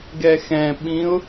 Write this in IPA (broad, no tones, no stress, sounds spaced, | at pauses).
ɡ ɛ x ɛ̃ ɓ ĩ ʊ̯